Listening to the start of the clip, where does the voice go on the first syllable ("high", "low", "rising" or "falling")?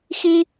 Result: high